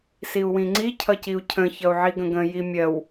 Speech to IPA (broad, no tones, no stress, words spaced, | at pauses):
siu̯wĩŋ͡ǀi cʰʌciu̯cʰə̃ çʌu̯ʕiɡə̃ɡə̃ jimʲɜw